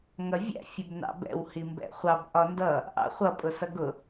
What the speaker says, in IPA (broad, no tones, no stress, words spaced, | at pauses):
ŋʌvʲæ̰ fʲəbnɑ̰bɛ̰w himbɛ̰χʷɑb ʔɒndʌ | ʔɑ̰χʷʌ pʼʊsʌɡʊ